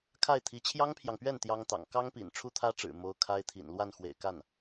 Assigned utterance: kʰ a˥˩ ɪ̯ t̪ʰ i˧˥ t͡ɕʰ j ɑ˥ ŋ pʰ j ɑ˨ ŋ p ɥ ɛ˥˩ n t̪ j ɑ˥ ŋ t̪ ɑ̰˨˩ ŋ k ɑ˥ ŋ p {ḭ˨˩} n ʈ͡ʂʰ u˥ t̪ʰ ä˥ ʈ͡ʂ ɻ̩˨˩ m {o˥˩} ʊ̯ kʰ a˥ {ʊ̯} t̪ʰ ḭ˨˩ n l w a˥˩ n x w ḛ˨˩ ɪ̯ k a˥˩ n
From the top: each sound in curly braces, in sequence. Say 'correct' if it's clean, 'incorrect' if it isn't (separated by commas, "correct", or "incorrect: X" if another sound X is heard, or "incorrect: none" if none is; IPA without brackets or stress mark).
correct, incorrect: o˧˥, incorrect: ɪ̯